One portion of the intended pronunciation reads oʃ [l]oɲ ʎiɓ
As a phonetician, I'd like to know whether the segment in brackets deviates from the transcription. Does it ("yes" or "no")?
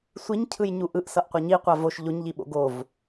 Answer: yes